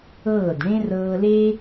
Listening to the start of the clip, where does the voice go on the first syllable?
falling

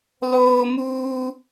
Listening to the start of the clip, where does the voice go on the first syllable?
high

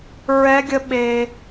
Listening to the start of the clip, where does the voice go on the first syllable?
high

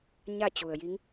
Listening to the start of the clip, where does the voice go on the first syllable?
falling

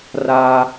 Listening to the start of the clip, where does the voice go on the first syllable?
low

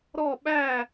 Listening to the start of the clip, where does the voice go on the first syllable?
falling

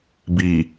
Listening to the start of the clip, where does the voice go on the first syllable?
low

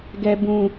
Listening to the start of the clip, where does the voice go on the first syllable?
low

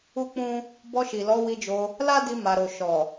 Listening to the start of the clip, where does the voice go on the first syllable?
high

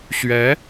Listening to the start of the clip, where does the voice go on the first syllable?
rising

